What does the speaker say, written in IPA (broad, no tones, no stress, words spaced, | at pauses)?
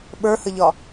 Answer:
ɓə˞həʎɒ